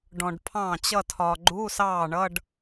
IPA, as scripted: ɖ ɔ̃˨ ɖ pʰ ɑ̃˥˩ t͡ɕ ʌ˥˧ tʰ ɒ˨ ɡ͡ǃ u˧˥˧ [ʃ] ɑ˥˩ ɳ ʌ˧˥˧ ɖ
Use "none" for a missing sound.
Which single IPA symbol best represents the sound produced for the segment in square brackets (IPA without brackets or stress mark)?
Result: s